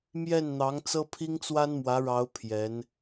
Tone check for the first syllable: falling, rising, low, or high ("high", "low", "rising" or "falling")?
falling